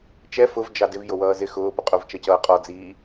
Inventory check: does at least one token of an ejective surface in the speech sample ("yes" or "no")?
yes